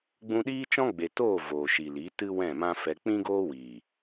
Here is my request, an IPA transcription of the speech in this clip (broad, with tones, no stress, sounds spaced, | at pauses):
ɡ͡b ũ˧ ɗ iː˦ t͡ʃ ɔ̃˦ ɡ͡b e˨ t oː˦˨ v oː˨ ʃ i˨ l i˨˦ t ɨ˦ w ɛ̃˦˨ m ã˦ f ɛ˧ k͡p ĩ˦ ɡ oː˦ w iː˨